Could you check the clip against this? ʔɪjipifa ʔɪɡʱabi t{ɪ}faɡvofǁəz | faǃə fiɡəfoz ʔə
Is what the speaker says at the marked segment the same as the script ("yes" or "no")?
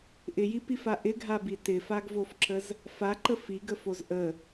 yes